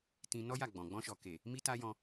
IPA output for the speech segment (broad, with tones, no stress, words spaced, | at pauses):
tĩ˧nɔ˦ja˦˨ɡ͡bɔ̃˨ ɡ͡bɔ̃˧ʃɔ˨ ke˨ | mi˦ta˦jɔ̃˧